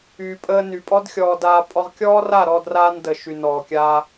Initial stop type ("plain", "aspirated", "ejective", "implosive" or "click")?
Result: ejective